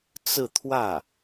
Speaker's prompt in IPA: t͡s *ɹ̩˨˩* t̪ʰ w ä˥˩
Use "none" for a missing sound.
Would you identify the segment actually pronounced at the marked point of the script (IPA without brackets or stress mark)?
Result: ɹ̩˥˧